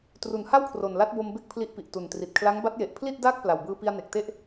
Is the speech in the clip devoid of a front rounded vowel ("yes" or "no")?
yes